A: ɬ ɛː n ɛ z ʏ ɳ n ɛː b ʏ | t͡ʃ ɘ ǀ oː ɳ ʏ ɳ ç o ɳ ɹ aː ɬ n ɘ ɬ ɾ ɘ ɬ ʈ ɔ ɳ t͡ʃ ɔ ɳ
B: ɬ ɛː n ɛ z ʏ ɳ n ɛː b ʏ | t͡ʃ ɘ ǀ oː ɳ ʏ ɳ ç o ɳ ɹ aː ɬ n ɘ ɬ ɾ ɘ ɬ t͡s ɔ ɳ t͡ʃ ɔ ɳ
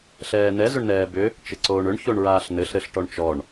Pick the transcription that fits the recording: A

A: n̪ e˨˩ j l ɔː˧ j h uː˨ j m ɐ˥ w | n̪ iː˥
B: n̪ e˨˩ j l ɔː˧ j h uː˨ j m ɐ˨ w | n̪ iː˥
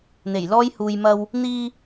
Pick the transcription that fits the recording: A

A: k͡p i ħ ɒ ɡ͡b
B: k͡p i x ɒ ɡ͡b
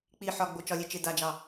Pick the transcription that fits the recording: A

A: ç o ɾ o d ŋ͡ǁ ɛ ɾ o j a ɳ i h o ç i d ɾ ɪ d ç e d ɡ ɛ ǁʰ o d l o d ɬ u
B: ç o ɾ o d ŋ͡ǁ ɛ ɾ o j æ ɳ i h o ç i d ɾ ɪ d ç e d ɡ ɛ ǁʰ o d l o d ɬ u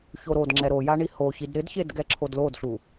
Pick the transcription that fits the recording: A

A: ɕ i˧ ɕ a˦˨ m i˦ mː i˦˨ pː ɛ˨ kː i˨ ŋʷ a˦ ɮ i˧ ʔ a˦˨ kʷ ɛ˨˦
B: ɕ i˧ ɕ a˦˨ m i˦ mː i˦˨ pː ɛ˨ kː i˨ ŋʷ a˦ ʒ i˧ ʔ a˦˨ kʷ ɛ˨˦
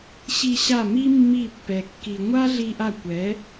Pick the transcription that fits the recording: A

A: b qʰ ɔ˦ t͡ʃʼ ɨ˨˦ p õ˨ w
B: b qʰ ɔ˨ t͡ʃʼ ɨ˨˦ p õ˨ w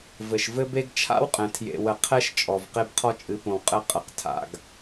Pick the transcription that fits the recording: A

